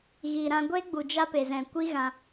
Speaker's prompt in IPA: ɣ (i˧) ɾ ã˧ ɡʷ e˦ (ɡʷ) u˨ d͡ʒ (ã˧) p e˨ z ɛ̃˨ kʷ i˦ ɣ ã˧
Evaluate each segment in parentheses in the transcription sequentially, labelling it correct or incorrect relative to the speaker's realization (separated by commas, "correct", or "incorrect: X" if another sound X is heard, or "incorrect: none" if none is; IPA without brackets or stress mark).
incorrect: i˨, incorrect: ɡ͡b, incorrect: a˧